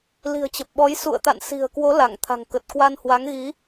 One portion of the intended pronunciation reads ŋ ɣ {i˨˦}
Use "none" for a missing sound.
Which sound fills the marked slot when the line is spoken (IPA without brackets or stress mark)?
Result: i˨˦